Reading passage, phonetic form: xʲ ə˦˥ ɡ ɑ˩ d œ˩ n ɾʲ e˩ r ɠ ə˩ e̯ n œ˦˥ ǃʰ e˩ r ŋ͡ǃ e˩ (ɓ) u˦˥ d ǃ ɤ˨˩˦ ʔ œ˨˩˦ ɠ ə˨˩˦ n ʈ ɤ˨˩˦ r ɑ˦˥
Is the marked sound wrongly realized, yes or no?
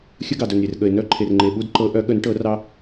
no